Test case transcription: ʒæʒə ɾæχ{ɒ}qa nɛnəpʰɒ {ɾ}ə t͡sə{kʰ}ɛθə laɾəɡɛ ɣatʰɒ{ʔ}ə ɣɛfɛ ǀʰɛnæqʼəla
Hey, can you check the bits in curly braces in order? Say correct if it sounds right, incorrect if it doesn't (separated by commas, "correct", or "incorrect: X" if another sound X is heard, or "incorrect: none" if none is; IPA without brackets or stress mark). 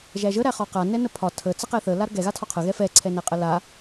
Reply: correct, incorrect: tʰ, incorrect: q, incorrect: qʰ